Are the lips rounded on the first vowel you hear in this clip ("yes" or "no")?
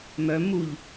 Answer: yes